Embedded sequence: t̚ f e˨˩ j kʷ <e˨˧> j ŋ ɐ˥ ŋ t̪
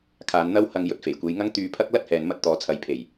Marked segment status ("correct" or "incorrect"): correct